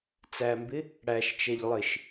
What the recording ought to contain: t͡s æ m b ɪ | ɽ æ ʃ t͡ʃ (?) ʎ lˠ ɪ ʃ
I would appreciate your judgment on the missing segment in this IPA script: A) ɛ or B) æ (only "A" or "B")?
A